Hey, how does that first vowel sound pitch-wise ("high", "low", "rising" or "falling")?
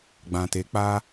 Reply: low